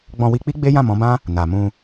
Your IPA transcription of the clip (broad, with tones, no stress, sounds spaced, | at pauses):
ɡ͡b ɔ̃˧ w i˧ k͡p i˦ ɡ͡b e˦ j ã˦˨ m ɔ̃˨˦ b ã˦ | n a˨ m ũ˧